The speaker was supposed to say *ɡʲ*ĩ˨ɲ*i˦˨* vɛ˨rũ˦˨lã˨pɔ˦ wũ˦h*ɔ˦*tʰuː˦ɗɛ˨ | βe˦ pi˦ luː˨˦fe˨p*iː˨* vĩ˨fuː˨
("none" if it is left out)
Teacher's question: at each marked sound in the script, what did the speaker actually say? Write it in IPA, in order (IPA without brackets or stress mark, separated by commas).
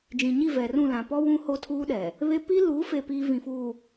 d͡ʒ, i˦˨, o˦, iː˨